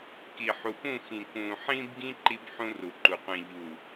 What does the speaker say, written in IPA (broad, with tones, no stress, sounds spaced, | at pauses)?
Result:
k i˨ ħ u˨ p ũ˦˨ x ĩ˨ k ũ˨ ħ ĩ˦ b ɡ ĩ˦ ǃ i˦ b ħ ũ˦ r u˨ ǃ u˨ qʷ ĩ˨ ʎ u˨